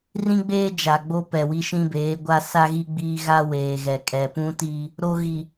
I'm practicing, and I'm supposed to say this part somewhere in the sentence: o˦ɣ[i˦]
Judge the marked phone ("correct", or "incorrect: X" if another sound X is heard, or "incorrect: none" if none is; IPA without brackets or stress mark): incorrect: i˨